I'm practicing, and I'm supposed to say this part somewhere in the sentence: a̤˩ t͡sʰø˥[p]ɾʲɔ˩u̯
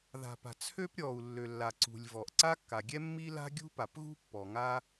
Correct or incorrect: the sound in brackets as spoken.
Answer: correct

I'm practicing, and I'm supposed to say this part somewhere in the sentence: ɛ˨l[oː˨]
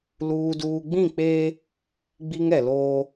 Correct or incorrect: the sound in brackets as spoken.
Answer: incorrect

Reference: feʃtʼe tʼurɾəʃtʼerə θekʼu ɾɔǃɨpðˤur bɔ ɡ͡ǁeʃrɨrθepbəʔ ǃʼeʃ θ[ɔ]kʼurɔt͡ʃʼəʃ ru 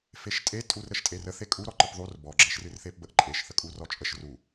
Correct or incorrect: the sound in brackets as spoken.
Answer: incorrect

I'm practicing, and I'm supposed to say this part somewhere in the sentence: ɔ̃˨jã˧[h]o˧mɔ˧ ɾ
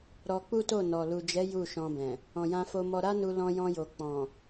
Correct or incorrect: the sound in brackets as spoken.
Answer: incorrect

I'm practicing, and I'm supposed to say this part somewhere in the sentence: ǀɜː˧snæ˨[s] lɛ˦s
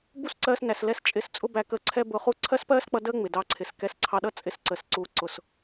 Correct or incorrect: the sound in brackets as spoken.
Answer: correct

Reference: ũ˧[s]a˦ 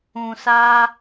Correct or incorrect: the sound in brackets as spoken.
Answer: correct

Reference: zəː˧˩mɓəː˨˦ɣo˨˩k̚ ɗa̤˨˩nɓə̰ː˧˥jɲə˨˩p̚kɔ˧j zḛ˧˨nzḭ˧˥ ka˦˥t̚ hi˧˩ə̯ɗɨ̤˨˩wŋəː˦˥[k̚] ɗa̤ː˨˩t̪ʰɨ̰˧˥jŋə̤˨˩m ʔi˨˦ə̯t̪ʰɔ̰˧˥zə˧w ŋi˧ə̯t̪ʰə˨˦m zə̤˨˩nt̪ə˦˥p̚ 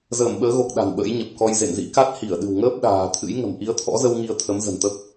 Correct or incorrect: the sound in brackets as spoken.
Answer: incorrect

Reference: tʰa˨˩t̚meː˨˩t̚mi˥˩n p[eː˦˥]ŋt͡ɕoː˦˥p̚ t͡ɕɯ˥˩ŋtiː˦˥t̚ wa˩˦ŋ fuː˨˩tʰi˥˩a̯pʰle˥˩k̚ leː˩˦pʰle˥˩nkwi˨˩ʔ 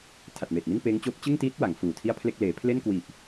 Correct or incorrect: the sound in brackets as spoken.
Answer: correct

